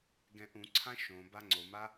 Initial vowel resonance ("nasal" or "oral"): nasal